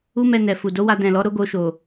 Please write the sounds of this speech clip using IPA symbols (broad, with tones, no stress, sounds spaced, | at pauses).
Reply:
u˦ m ɛ˧ n ɛ˨ f u˨ d o˨˦ w a˧ d ɛ̃˨ l ɔ˨˦ ɾ o˦ ɡ o˧ ʃ o˨